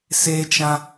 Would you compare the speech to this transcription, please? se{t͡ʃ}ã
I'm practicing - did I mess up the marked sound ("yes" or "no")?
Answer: no